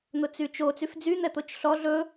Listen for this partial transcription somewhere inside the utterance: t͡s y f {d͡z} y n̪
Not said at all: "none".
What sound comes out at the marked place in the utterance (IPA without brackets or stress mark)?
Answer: d͡z